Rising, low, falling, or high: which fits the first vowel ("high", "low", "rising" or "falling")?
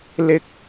high